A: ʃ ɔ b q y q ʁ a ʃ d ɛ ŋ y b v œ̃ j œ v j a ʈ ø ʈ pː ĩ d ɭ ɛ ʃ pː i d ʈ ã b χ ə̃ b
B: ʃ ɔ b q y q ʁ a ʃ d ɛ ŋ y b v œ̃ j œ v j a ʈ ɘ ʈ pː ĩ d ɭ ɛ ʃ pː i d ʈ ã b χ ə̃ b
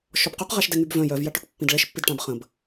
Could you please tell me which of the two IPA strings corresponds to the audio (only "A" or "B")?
A